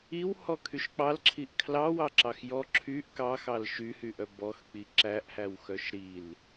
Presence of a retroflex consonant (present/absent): absent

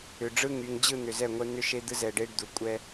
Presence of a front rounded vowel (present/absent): present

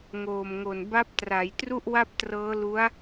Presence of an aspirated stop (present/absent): absent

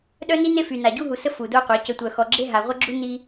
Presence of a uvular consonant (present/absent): present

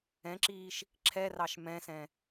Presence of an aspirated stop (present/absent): present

